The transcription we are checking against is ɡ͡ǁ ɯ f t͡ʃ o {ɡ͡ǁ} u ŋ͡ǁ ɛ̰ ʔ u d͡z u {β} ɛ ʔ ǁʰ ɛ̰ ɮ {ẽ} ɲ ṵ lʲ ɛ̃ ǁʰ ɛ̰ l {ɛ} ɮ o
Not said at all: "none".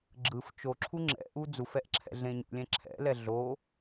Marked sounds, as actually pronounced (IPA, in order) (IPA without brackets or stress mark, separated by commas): ǁʰ, f, ẽ, ɛ